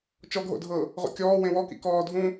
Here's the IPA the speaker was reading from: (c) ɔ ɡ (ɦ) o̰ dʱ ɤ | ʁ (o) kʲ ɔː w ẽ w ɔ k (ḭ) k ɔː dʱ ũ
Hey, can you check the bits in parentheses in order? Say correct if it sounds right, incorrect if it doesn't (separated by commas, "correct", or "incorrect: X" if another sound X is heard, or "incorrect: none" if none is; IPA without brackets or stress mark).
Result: incorrect: t͡ʃ, correct, incorrect: o̰, correct